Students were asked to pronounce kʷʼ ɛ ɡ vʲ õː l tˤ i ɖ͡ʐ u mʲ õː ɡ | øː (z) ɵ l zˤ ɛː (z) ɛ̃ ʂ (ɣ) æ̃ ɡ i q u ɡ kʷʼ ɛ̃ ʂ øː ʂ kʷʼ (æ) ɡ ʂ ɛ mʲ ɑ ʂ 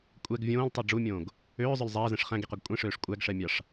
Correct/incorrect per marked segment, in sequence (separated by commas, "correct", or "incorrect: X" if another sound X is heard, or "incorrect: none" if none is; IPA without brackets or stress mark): incorrect: zˤ, correct, incorrect: χ, correct